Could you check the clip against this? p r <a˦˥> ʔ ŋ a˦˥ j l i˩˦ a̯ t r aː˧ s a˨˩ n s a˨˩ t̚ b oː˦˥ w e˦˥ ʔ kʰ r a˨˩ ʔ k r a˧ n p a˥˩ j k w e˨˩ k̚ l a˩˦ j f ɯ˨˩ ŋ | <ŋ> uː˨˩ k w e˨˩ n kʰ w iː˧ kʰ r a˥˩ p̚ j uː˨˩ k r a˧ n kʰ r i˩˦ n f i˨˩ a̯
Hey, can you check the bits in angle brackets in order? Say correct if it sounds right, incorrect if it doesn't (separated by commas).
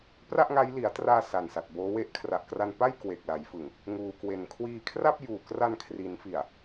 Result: incorrect, correct